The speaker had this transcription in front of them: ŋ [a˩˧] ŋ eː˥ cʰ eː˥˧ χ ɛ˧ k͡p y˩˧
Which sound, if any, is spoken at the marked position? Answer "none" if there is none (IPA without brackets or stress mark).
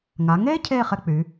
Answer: a˩˧